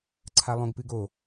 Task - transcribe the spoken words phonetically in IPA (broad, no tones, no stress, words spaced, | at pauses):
ǀʰalˠõɡpɨɡo